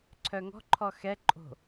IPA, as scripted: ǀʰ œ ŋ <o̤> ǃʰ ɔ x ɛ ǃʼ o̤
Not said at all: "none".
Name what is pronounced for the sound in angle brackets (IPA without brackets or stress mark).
ɔ̤